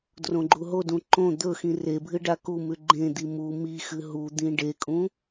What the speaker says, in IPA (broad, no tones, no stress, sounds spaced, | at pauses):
d r õ ɡ͡ǃ u ɦ o d ũ ǃ õ d̪ ɵ x ĩ r e bʱ ɨ ɖ a k u m ʉ ɡ͡ǃ ẽ d̪ i m u m i x ɨ ɦ u d̪ ĩ ɖ e kʼ ũ